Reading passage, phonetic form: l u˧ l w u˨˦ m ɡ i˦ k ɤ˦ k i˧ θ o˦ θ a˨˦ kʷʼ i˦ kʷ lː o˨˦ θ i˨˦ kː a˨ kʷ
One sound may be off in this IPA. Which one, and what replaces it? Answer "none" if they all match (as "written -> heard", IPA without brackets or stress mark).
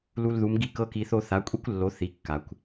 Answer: w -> ð